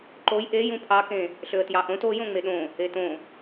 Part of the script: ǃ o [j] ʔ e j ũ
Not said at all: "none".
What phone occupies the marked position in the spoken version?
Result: j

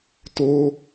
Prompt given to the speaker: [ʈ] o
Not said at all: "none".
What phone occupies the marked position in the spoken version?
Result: t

